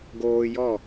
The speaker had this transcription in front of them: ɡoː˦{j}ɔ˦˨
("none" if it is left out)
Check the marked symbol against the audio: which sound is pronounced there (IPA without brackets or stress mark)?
j